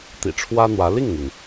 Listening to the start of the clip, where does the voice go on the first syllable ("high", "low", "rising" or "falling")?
low